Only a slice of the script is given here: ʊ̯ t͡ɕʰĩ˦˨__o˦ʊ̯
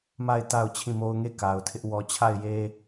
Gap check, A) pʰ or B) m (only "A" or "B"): B